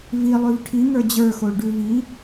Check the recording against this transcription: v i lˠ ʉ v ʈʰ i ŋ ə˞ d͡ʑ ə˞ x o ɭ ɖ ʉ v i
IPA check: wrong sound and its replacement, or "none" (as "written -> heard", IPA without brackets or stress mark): none